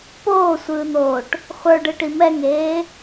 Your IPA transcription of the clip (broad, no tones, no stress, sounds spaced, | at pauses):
p oː sʷ ɯː n̪ oː ʈ | χʷ ə˞ ɖ ɯ ʈ i m ɛ ŋ eː